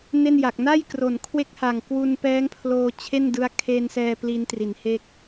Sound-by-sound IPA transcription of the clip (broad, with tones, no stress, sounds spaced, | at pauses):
n e˥˩ n j a˨˩ k̚ n a˥˩ j k r o˩˦ n kʰ w e˦˥ k̚ h a˨˩ ŋ k w u˧ n p ɛː˦˥ ŋ pʰ l oː˧ t͡ɕʰ e˥˩ n d ɯ˦˥ a̯ kʰ eː˧ n s ɛː˧ p l i˦˥ n t r i˩˦ n h e˥˩ k̚